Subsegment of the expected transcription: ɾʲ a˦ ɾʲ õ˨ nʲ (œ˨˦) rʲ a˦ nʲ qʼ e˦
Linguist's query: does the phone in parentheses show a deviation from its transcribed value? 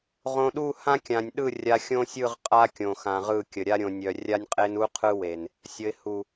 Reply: yes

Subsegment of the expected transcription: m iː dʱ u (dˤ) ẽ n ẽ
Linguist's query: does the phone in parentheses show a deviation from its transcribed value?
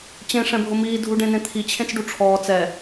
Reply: yes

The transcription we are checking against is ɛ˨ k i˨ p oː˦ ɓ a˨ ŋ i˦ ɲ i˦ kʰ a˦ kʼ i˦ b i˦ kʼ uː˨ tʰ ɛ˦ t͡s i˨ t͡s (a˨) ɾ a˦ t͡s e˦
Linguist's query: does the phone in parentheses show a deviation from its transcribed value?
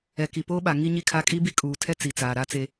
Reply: yes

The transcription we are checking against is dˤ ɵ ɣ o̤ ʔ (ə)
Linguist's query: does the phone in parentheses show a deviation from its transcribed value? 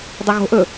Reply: yes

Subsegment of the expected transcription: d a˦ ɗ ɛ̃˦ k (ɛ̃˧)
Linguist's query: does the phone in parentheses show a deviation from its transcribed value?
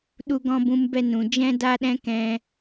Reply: no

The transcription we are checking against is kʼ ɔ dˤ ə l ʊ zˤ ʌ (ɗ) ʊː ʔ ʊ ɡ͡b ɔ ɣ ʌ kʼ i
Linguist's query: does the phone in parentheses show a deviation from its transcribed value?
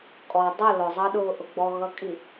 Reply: no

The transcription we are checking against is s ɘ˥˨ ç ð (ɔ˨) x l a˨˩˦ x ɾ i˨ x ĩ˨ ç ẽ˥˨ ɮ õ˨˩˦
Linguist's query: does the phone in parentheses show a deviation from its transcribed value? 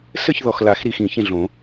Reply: no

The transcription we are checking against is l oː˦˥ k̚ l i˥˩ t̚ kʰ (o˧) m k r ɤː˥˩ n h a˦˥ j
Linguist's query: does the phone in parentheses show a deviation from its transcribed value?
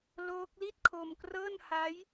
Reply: no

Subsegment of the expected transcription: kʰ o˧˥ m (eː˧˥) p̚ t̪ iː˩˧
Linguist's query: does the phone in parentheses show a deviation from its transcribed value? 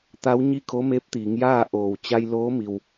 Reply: no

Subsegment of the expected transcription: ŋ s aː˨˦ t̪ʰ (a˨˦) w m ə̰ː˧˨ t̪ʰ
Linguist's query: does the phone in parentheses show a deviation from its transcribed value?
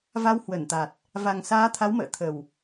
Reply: no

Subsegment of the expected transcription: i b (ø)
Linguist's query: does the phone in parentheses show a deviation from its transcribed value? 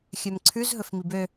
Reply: no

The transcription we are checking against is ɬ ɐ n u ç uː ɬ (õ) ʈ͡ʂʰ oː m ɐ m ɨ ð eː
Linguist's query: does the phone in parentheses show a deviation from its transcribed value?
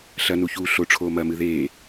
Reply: yes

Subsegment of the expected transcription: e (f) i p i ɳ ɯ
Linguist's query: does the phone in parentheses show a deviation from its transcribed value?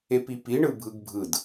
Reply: yes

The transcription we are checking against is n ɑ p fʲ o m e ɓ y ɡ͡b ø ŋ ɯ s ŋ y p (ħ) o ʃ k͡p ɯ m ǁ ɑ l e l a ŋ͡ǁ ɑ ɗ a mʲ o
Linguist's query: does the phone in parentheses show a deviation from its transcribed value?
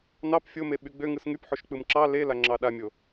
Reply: no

